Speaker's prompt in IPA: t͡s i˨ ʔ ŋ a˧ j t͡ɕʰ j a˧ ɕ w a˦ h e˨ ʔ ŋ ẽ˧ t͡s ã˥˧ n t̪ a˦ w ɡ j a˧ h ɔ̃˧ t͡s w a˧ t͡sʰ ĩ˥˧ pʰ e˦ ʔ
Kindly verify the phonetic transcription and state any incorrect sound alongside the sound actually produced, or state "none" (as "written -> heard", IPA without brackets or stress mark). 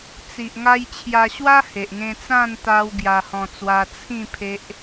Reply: none